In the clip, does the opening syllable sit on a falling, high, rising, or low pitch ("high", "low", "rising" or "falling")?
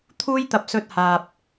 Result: high